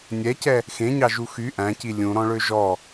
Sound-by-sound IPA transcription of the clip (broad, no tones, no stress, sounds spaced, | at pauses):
nʲ ɛ c ɛ | x ẽ ɲ ɑ ʒ u x y ʔ æ̃ c i lʲ ũ ɾ ɔ̃ ɭ ø ʒ ɔ